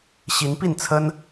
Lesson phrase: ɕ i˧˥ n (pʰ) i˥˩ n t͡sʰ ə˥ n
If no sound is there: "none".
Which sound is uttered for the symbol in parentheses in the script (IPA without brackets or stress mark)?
p